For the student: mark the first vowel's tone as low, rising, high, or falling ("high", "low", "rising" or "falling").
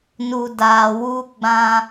low